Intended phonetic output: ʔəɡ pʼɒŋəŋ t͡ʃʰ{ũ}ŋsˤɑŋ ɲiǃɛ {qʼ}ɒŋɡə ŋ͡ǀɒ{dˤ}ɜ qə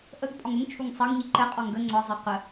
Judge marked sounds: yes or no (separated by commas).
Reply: no, yes, no